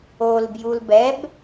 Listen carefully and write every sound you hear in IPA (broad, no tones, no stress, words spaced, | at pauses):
olbjul bɛb